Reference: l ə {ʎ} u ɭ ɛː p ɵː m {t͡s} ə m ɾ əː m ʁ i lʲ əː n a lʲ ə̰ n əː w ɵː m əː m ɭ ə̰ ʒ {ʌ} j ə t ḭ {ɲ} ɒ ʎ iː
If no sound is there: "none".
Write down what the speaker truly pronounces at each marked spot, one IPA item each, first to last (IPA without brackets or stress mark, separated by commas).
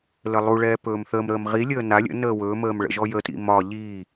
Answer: lˠ, θ, ɔ, m